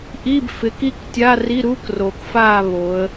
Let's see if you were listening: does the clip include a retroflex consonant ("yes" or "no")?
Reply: no